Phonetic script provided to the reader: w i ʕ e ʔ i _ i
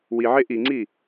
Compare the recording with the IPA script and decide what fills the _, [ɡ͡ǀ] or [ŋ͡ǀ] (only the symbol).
ŋ͡ǀ